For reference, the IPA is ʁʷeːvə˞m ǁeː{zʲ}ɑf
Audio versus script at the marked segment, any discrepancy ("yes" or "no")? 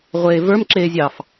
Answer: no